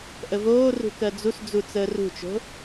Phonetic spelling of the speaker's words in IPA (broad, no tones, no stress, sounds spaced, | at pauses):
ʔ ə v oː r ṳ k ɜ d͡z u s d͡z u t͡s əː r ṳ t͡ʃ o̤